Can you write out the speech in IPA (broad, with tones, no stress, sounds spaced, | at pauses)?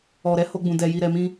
ɔ˨ ɾ ɛ˨˦ h o˧ ɡ͡b ũ˨ d ɛ˨ j i˨ ɾ ɛ˨ m ĩ˧